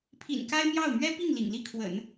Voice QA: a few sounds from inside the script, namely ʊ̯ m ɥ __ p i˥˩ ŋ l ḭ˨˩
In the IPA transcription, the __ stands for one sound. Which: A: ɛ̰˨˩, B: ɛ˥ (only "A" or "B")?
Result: B